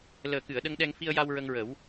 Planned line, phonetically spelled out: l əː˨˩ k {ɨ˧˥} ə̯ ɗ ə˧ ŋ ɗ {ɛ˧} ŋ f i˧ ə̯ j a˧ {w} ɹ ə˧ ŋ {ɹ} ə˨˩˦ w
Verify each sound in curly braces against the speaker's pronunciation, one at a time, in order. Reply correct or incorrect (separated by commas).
incorrect, correct, correct, correct